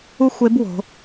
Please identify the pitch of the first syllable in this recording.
high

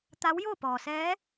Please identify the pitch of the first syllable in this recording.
rising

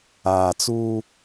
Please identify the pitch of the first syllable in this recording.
low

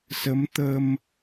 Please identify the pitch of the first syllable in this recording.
rising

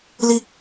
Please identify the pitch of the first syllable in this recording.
high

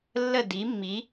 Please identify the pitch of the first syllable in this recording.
falling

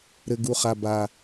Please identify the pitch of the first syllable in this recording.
low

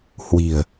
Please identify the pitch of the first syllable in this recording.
low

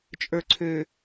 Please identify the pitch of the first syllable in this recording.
low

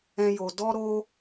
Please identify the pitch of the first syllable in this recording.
high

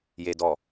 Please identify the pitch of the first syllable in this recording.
low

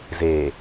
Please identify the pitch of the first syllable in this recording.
low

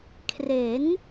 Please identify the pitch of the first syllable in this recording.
rising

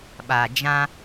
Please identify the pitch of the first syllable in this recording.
low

